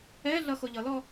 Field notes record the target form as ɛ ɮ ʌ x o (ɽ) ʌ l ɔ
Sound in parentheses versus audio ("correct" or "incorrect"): incorrect